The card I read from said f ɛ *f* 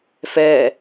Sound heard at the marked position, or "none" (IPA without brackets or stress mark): none